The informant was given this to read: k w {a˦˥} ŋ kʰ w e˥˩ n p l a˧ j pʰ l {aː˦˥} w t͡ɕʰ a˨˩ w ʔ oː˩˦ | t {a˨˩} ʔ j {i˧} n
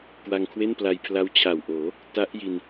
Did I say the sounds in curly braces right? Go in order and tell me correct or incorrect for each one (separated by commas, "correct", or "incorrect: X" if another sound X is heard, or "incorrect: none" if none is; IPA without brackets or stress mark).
incorrect: a˧, incorrect: a˦˥, incorrect: a˦˥, correct